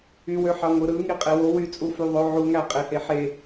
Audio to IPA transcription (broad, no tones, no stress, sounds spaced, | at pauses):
y w ø ħ ɑ ŋʷ ɯ ɾ ɯ ŋ i qʼ e w o w y t͡sʼ u f y ðˤ o ʕ u ŋ æ qʼ e h e ħ e